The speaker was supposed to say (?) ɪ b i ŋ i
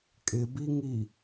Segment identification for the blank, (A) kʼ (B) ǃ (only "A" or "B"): A